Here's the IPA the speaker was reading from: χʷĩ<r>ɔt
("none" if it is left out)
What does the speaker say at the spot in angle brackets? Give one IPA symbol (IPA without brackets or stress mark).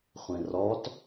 r